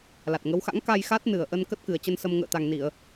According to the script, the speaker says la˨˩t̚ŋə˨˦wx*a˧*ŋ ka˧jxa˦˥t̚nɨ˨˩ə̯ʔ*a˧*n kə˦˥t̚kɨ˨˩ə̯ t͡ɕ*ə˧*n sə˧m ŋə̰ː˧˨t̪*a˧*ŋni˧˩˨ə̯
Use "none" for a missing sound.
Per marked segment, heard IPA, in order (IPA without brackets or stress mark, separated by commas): a̰˧˥, ə˧, ə˧, a˨˩